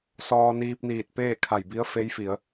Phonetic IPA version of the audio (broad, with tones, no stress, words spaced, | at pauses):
sɔː˧ niː˧p̚niː˧˩t̚ peː˥˨kʰa˧˩jbi˧˥ə̯ fe˧˥jfi˩˧ə̯